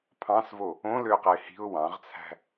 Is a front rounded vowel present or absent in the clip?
present